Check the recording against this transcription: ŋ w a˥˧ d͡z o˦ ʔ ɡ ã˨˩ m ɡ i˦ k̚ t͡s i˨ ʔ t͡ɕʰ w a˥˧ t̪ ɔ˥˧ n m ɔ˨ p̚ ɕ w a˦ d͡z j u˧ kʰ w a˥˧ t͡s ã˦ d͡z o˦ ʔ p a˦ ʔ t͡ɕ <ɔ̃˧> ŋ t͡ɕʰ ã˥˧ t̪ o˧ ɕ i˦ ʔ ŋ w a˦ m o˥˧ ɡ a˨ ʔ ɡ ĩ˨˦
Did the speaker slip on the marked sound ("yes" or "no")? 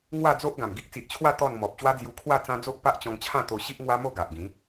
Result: no